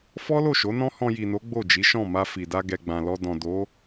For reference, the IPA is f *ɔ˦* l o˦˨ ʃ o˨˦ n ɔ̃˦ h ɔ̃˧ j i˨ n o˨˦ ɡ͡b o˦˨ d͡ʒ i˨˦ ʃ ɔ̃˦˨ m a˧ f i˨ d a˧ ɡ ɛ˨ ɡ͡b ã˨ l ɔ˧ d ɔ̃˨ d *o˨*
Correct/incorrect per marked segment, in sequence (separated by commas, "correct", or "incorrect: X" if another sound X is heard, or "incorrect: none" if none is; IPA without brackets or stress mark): correct, incorrect: o˨˦